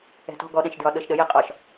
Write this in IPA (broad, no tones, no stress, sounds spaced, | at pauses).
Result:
ɛ̤ t ɔ̤ ɡ ɔ ɗ ɛ̃ ʃ d ɹ ɒ ɗ ɤ ʃ ɗ ə j ɛ qʼ ɒ ʃ